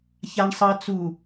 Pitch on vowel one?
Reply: low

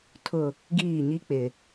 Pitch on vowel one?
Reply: low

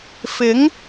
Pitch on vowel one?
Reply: rising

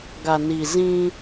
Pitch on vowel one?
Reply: low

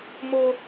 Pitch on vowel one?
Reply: high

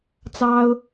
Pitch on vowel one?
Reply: high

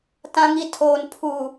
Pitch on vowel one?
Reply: high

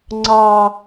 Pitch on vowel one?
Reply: low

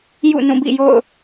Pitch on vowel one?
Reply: falling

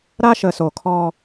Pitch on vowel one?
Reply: high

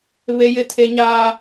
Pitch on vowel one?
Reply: high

